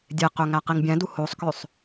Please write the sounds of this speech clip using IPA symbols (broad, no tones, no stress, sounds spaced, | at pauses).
dʲ e q ø ŋ æ q i ŋ bʲ æ̃ d u h o sˤ k ø sˤ